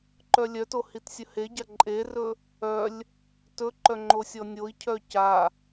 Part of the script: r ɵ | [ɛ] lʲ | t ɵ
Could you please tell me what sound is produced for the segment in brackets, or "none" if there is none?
œ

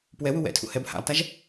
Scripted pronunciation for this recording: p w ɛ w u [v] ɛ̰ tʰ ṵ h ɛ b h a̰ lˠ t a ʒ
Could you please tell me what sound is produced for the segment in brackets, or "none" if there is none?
w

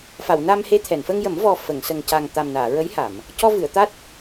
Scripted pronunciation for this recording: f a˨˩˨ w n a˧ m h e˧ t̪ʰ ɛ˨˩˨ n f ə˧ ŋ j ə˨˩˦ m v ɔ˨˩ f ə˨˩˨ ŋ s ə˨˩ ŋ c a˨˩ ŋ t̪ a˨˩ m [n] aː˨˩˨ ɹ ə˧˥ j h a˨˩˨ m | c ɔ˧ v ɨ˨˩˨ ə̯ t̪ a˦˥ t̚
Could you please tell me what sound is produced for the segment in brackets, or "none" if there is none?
n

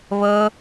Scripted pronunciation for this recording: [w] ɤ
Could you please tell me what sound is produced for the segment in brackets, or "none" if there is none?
β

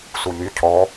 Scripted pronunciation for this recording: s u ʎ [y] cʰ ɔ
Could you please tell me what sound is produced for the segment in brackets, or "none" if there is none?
y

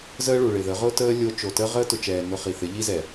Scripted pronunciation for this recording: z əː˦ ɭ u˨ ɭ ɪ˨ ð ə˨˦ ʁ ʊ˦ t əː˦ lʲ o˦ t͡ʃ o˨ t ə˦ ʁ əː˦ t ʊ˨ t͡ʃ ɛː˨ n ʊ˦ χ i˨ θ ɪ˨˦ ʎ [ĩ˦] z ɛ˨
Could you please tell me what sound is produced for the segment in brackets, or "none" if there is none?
i˦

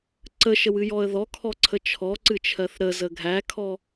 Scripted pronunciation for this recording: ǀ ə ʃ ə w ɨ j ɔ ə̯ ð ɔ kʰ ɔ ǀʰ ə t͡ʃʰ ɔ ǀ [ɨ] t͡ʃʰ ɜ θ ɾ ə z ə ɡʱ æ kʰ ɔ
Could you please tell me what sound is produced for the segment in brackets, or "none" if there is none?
ɨ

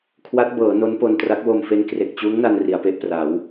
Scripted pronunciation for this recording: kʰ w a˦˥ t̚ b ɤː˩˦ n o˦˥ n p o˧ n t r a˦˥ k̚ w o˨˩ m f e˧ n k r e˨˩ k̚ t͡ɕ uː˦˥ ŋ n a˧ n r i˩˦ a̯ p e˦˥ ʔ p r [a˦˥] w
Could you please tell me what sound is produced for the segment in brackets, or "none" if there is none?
a˩˦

